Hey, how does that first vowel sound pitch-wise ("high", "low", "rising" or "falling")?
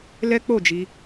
high